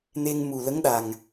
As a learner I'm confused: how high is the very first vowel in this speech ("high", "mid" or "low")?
mid